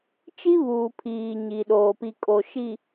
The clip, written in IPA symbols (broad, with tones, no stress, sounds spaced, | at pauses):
t͡ʃ i˦ β uː˨ pʰ iː˨ ɲ i˨ ɗ oː˨ p i˨ kʼ o˨ ʃ i˨